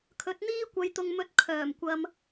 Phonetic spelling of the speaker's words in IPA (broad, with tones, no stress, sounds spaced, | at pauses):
kʰ ɵ˨˥ t̚ n̪ iː˥ kʷ ɐ˨˧ j t̪ ʊ˨ ŋ m ɵ˨˥ t̚ kʰ œː˨˩ m kʷ ɐ˧ m